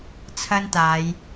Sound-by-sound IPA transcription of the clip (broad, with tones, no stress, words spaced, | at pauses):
t͡sʰɐ˥nt̪aː˨˧j